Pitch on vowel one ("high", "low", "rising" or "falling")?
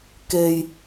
low